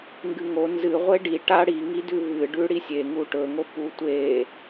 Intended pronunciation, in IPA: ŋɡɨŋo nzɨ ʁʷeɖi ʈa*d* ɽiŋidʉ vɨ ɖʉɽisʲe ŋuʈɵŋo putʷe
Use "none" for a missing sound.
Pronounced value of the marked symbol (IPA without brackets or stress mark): none